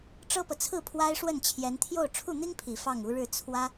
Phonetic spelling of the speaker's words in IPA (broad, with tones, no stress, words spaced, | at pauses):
ʈ͡ʂɤ˥pɤ˨t͡sʰɹ̩˥˩ pʰwa˥ɪ̯ʂwə˥˩n t͡ɕʰjɛ˧˥nt̪ʰjo˥˧ʊ̯ ʈ͡ʂʰu˥˩n̪i˥ŋpʰi˨˩ fɑ˥˩ŋu˧˥ɻɻ̩˥˩ t͡sʰwä˥